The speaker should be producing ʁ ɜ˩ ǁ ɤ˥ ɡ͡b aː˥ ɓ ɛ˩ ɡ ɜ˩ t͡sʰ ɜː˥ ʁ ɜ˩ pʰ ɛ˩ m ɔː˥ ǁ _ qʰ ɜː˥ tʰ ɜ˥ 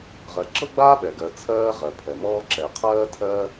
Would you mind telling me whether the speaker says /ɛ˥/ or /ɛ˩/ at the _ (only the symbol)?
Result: ɛ˩